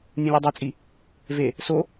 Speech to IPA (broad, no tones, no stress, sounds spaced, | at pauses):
nʲ ũ lʲ u dˤ e t͡sʼ i | v e | s o